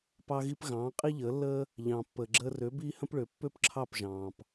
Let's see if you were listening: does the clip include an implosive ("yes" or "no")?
no